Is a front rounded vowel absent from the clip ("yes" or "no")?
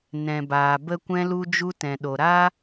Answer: yes